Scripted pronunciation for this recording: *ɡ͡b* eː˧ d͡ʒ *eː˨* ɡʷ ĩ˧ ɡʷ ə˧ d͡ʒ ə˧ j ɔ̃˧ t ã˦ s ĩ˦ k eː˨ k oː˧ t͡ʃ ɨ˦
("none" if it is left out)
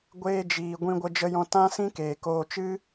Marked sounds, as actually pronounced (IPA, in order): ɡʷ, iː˨

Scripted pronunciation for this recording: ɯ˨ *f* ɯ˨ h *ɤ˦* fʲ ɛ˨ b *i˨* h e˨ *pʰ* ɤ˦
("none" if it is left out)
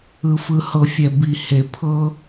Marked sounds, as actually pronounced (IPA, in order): f, ɤ˨, i˨, pʰ

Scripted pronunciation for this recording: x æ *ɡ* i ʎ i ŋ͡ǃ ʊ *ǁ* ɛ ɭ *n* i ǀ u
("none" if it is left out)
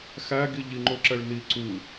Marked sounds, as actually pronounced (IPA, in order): ɡ, ǁ, n

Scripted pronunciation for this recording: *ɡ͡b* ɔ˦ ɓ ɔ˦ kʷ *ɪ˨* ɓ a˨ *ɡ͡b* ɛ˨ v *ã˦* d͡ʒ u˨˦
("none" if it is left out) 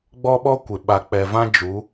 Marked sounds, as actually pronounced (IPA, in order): ɡ͡b, ɪ˨, k͡p, ã˦

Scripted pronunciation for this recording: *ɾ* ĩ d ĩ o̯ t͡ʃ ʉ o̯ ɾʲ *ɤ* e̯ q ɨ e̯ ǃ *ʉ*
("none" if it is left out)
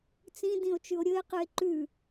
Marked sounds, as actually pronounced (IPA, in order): t͡s, ɵ, ʉ

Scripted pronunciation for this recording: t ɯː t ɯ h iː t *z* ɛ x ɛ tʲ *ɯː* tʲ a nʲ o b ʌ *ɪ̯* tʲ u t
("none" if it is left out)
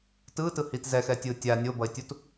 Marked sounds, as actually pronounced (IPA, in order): z, ɯː, ɪ̯

